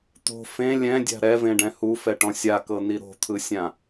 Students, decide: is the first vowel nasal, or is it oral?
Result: oral